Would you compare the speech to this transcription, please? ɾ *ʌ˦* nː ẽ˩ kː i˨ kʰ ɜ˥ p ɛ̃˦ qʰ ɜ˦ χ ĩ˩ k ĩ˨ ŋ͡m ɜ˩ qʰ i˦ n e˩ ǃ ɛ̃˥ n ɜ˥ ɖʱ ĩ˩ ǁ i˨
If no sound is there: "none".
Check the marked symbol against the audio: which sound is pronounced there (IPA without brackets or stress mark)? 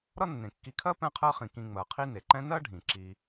ʌ˦